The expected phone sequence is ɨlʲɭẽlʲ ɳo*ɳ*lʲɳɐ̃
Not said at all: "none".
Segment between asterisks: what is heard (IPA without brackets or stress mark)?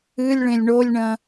none